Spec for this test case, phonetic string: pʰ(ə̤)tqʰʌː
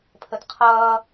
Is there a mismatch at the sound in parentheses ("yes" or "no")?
yes